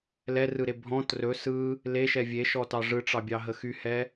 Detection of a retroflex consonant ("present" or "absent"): present